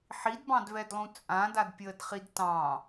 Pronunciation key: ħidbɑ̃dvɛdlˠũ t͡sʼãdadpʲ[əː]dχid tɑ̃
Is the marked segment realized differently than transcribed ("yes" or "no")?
no